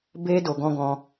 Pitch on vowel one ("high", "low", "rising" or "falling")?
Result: high